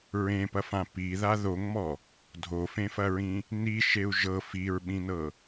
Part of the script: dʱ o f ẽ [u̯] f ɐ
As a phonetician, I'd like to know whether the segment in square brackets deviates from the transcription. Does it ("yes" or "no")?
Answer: yes